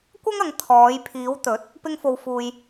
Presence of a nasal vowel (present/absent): absent